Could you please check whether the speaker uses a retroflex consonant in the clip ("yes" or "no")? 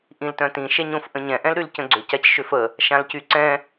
no